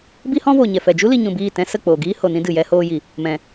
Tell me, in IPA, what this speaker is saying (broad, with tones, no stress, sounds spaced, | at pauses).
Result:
b i˦ h ɔ̃˦ v oː˨ ɲ ɛ˨ f ɛ˨ d͡ʒ u˦ l i˧ ɲ ũ˨ b iː˦˨ t ɛ̃˦ s ə˦˨ k͡p oː˨ ɡ iː˦ h o˨ n ĩ˦ d ɨ˨ j ɛ˦ h oː˧ j i˨ | m ɛ̃˨